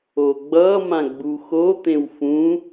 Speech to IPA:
o ɡ͡b ʌ m ã ɡ͡b u x o t̪ ẽ w f ũ

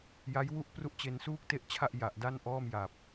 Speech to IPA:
j a˦˥ j w u˥˩ ʔ p r u˥˩ ʔ t͡ɕ e˧ n s uː˥˩ k̚ t e˥˩ ʔ t͡ɕʰ a˥˩ ʔ j a˨˩ ʔ d a˥˩ n ʔ ɔː˥˩ m j a˨˩ p̚

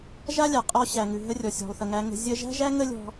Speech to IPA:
ʒ a˦ lʲ a˨ qʼ ɔ˧ ɕ æ˨ ŋ ʉ˨ ɦ ə˦ rʲ ɔ˨ sʲ ɔ̤˨ lˠ θ ə˨ ŋ æ˧ ŋ ə̤˧ zʲ ə˦ ʒ æ̤˦ ʒ æ˦ ŋ ə˦ lʲ ɔ̤˧

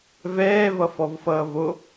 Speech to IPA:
v ɛː v ʌ f ɔ v f ʌː v o

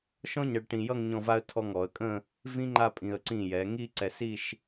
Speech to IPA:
ʃ ɔ̃˥ ɲ ʌ˧ ɭ ʈ ĩ˧ j ʌ˥˧ ŋ ɲ ɔ̃˥˧ v a˥ ə̯ tʰ ɔ˥˧ ŋ ɔ˩˧ ə̯ kʼ ə̃˥˧ | v ĩ˥ ŋ͡ǃ a˥˧ pʼ ĩ˧ ə̯ ǀ ĩ˧˩ j ɛ˩˧ ŋ i˥˧ ǀ ɛ˧ s i˥˧ ʃ

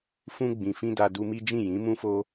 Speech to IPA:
f ũ˧ ɡ͡b ĩ˨ f ĩ˧ d a˧ d u˧ m i˦ d͡ʒ ĩ˦˨ j ĩ˨˦ m ũ˦ f o˦

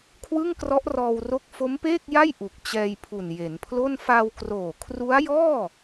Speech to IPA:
kʰ w ɯ˥˩ ŋ k r ɔ˦˥ ʔ r ɔː˧ w r o˦˥ k̚ f o˦˥ m p eː˥˩ k̚ j a˥˩ j ʔ u˨˩ k̚ t͡ɕ ɛː˧ j pʰ u˨˩ n j e˩˦ n pʰ l o˥˩ n f a˧ w k r oː˨˩ kʰ r u˦˥ a̯ j ɔː˥˩

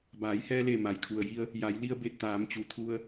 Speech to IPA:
b aː˩˧ j h ɛː˧ l e˧˩ m a˩ j kʰ u˩ ə̯ j i˧ ə̯ | j a˩˧ j l i˧ ə̯ b e˧˩ t̚ t̪ aː˩˧ m t͡ɕ u˩ t̪ʰ u˧ ə̯

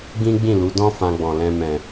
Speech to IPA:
ɡ ĩ˦ ɡ͡b ĩ˦˨ l u˨˦ d ɔ̃˦ f ã˧ ɡ͡b ɔ̃˨ l ɛ̃˧ m ɛ̃˨

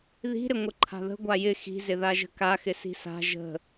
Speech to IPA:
ð i̤ ɾ ɪ ŋʷ ə ǃʰ a̤ ð ə̤ ɡʷ a j ɪ x i̤ z ɪ ð a ʒ ə̤ k a x ɪ s i̤ s a̤ ʒ ə̤

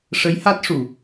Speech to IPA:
ʂ ə˧˥ j h a˦˥ t̚ ʂ u˨˩˨

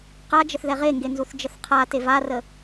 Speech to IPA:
q a d͡ʒ ə θ ð ɛ ʁ e ŋ ɡ e n z u θ d͡ʒ ə θ qʰ a t e v a r ə

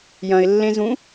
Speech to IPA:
j ɐ̃ ɪ̯ lː ẽ z ũ

